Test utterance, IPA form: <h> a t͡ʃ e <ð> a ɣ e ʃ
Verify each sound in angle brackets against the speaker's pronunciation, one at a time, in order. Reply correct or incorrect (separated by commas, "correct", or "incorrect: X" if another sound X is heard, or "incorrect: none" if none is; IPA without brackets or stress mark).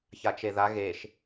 incorrect: ç, correct